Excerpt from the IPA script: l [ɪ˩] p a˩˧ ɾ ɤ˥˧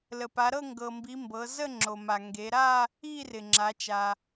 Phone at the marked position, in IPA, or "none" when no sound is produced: ə˩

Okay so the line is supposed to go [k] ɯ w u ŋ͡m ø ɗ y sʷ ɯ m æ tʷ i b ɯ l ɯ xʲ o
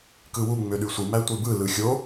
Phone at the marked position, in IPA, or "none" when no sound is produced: k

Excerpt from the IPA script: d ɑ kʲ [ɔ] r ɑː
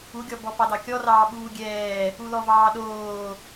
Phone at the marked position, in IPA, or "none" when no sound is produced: ɔ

